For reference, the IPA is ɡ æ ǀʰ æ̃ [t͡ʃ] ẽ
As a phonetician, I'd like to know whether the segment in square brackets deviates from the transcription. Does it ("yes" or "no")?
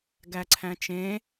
no